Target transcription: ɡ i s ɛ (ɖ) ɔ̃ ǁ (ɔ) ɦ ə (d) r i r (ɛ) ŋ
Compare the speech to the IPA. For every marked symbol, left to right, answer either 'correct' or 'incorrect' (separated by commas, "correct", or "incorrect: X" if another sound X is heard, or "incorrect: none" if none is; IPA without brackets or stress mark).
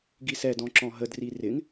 incorrect: d, incorrect: ɔ̃, correct, incorrect: ɪ